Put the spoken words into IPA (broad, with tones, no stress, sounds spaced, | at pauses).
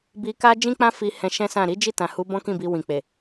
b i˧ k a˦ d͡ʒ ĩ˦ k͡p ã˦ f i˧ h ɛ̃˧ ʃ ɛ̃˦ s ã˦˨ ɾ i˨˦ d͡ʒ i˦˨ t ã˨ h u˨˦ b ɔ̃˦ k ĩ˦˨ b i˧ w ĩ˨ k͡p e˨